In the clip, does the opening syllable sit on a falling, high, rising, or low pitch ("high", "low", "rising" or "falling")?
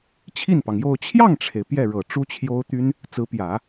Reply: falling